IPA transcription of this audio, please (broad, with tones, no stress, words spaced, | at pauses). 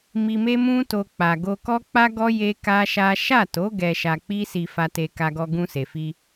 mi˧me˦ mũ˦to˧ k͡pa˨ ɡo˧kɔ˦k͡pa˦ɡɔ˦ je˦ka˦ʃa˦ ʃa˦˨to˨˦ ɡɛ˧ʃa˧k͡pi˦ si˧fa˧te˧ ka˧ɡɔ˧ɡũ˧ se˨fi˧